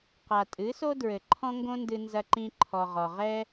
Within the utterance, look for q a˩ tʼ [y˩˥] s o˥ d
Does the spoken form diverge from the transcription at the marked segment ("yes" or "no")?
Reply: yes